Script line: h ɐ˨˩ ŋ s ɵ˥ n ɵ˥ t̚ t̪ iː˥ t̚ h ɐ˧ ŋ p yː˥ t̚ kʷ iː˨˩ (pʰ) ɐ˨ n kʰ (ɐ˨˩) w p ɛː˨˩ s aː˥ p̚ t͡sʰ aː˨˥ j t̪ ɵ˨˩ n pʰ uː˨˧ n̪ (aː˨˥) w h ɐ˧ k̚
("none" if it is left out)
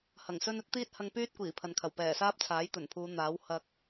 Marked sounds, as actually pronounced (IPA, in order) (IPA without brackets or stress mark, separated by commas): pʰ, ɐ˨˩, aː˨˥